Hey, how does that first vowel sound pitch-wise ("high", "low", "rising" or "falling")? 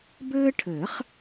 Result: high